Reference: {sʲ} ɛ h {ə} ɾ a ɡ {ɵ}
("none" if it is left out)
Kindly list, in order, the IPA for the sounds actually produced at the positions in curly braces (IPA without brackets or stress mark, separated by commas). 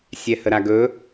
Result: sʲ, ə, ɵ